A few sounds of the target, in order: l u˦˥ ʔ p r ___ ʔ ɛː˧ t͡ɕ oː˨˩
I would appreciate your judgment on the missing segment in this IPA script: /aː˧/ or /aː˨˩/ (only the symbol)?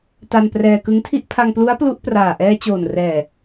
aː˨˩